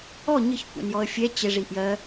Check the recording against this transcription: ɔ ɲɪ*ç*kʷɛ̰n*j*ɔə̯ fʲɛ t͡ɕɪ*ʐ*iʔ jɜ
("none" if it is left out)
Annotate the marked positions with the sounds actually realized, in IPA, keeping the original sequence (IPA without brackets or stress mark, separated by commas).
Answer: ç, j, ʐ